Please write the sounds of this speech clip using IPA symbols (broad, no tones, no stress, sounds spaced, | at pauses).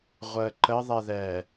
ʁʷ əː ǃ ə ðˤ ɛ ð ɛː